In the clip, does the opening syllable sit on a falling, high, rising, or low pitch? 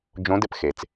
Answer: rising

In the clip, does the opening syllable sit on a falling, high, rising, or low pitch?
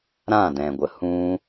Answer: falling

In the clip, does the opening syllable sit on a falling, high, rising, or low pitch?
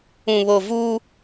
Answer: low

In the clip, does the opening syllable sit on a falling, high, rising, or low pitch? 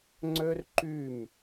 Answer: high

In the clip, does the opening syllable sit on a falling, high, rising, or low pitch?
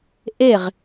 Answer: falling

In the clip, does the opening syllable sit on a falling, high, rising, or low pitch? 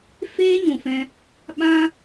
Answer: high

